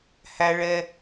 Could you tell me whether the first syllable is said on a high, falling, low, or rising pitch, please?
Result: low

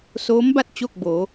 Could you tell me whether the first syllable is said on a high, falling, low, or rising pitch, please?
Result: rising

